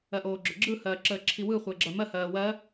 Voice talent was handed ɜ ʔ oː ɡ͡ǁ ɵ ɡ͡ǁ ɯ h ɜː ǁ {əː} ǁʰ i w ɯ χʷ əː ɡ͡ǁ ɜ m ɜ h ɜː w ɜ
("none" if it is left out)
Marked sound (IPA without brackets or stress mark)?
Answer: əː